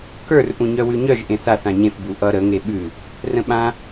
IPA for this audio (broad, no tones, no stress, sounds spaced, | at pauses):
k ə˞ r ʔ ũ ɲ œ w ʉ ɲ œ ʒ ʔ ẽ θ a θ ã ɲ ẽ f b u ʔ ʌ ɾ ə ŋ e ɓ ʉ | r ə̃ ɓ ã